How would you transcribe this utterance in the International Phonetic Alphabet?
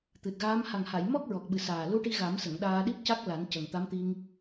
t̪ ɨ˨˩ t̚ ɣ aː˧˥ m h a˨˩ ŋ h a˨˩˨ j m ɔ˦˥ k̚ ɹ ɔ˨˩ k̚ ɓ ɨ˨˩ s aː˨˩ l u˧ ʈ i˧ ɣ a˨˩˦ m s ə˨˩˨ ŋ ɗ aː˧ ɗ i˦˥ p̚ c a˦˥ k̚ l a˨˩˦ n c ə˨˩ ŋ t̪ a˧˥ m t̪ i˧ ŋ

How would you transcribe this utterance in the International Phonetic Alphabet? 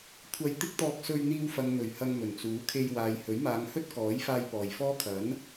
kʷʰ ɐ˧ j t̪ ɪ˥ k̚ t̪ ɔː˧ k̚ s ɵ˧ ɥ n̪ iː˧ w f ɐ˨ ŋ n̪ ɵ˨˩ ɥ h ɐ˧ ŋ m ɵ˨˩ n t͡s uː˨˥ kʰ e˧ j w aː˨ j h ɵ˨˥ ɥ m aː˨˧ ŋ h ɵ˥ t̚ k ɔː˨˥ j f aː˧ j p ɔː˨˩ j f ɔː˥ kʰ ɐ˨˥ n

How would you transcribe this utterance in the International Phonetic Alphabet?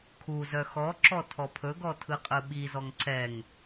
kʰ u z œ x ɔ ǁ ɔ tʰ ɔ pʰ ɵ ɡ ɔ tʰ ɯ qʼ ɯ ɓ i z ɔ ŋ ǀ ɛ ŋ

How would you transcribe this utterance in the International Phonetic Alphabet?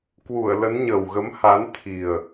k w u˧˩ ə̯ l ə˨˦ n ɲ ə˨˩ w ɣ ə˨˦ m h a˨˦ n t̪ʰ i˨˩ ə̯

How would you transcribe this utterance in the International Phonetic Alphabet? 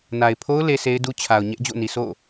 n a˨ ɪ̯ pʰ o˦ ʊ̯ l e˦ s e˦ ɪ̯ d u˦ t͡ɕʰ a˨ ʊ̯ ɲ ɛ˦ ʔ d͡ʑ o̰˦˨ n i˨ s o̰˦˨

